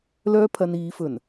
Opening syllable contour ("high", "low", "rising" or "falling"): high